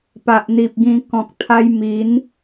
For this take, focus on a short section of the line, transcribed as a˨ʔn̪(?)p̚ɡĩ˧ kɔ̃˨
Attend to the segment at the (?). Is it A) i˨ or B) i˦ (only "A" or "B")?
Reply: A